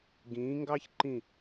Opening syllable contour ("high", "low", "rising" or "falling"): rising